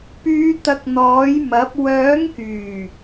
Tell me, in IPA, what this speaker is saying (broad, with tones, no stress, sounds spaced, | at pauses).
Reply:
p yː˨˧ t̪ ɐ˨ k̚ n̪ ɔː˨˥ j m ɐ˨˥ p̚ w œː˨˥ ŋ k yː˨˩